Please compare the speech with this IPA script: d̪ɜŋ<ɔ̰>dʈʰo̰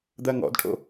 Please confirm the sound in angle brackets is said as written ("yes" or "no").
yes